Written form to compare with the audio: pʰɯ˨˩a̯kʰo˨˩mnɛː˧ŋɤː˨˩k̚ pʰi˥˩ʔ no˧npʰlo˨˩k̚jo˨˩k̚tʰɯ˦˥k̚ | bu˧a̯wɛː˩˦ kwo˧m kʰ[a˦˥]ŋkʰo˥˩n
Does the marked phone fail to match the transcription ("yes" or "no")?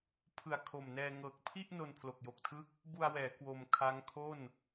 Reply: no